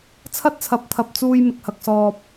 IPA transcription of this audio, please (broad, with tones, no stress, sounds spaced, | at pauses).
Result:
t͡sʰ ɐ˥ t̚ t͡sʰ ɐ˨˥ p̚ t̪ʰ ɐ˨ p̚ t͡s uː˧ j m ɪ˨ k̚ h ɐ˨ k̚ s ɔː˨ p̚